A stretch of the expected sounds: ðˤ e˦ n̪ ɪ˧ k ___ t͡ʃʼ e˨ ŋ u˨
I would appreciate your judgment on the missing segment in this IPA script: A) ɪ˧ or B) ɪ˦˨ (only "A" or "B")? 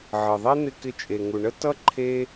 A